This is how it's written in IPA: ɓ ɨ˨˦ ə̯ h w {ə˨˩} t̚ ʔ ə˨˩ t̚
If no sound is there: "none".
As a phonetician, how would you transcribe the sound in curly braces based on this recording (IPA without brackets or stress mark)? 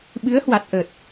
a˨˩